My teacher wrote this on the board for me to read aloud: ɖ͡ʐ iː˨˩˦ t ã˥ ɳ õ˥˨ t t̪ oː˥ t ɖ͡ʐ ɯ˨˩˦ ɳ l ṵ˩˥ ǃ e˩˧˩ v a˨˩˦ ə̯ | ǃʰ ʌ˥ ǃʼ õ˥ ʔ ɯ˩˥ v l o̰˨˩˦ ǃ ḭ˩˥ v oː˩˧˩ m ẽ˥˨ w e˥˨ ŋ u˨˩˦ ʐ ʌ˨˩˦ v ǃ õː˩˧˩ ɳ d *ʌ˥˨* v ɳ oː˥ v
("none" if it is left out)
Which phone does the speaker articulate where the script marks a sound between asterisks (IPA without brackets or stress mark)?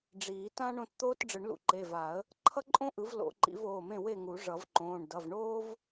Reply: ʌ˩˧˩